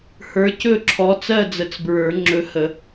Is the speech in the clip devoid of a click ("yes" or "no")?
no